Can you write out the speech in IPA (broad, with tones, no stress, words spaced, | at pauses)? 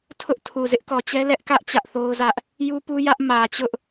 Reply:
tʰʊ˦ʔtʰu˨ zɪ˦ʔkɔ˨t͡ɕɛ˦ lɛ˦ʔkä˦ʔ t͡ɕä˦ʔθo˦ʊ̯zä˦ʔ | ju˦pu˦jä˦ʔ mä˨t͡ɕʊ˦ʔ